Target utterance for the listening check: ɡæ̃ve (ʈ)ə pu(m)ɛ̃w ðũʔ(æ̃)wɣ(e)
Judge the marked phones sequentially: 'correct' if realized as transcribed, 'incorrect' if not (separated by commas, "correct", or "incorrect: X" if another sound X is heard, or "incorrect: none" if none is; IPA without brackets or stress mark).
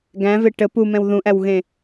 correct, correct, incorrect: æ, incorrect: ẽ